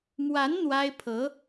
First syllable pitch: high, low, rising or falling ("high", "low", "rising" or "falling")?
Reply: rising